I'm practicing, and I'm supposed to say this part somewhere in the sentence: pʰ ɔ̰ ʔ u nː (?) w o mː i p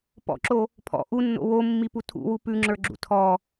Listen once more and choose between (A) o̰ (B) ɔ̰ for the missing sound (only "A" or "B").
A